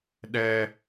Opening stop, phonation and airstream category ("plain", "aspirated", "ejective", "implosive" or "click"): implosive